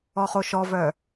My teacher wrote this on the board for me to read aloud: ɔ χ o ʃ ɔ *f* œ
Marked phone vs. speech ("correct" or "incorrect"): incorrect